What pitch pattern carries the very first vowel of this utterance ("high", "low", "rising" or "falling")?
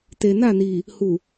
low